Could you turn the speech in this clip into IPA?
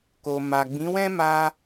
k o˨ m a˨ ɡ͡b ĩ˨˦ w ɛ̃˦ m a˧

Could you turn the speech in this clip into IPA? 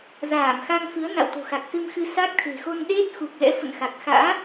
z aː˧˩ m x a˧ ŋ f ɨ˨˦ ə̯ n a̰˧˨ w t̪ o̤˨˩ x a˨˩ k̚ s ɨ˧ m x ɨ˧ s a˦˥ k̚ t̪ʰ e̤˨˩ x o˧ n ɗ e˦˥ t̚ x u˨˩ k̚ l ɛ̰˧˥ f ə̰˧˨ n x a˨˩ k̚ x a̰ː˧˥

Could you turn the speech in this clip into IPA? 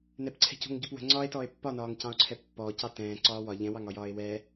n ɛ p ǀʰ ɛ̤ c o̤ ŋ ɟ o p w ə̤ ŋ͡ǀ ɒ e̯ t ɔ e̯ pː ɒ n ɒː ŋ c ɑ̃ o̯ ǀʰ ɛ pː ɔː c ɑ t ɛ̃ː ǀ ɒː w ɒ ʎ ɛ̃ w ɑ ŋ ɒ j ɒː e̯ w ɛ

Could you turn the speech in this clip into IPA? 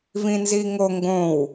v ĩ n z i ŋ o ŋ ɡ õ w

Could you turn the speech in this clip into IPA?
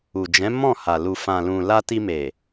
u˨ d͡ʒ ɛ̃˨˦ m ɔ̃˦˨ h a˨ l u˨ f ã˨ l ũ˨ l a˧ t i˧ m e˨

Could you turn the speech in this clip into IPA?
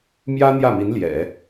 m j ä˥ n̪ j ä˥˩ m i˧˥ n l j ɛ̰˨˩˦

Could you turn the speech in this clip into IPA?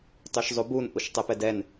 tˤ y ʃ zˤ u b u n ʔ u ʃ tˤ ɛ p ɛ d ɛ n

